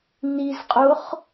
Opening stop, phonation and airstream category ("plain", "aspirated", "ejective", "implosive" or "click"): ejective